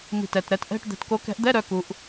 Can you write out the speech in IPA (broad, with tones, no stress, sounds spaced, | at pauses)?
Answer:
m i̤˧˩ t ɛ˧˩ t ɾ ɛ˨˦ t ʔ ɛ̤˧˥˧ ʈ d̪ ɛ̤˨˦ t k o˨˦ k ɛ̤˨˦ ʔ d̪ ɛ˧˥˧ ɾ œ˨˦ k u˨˦ ʔ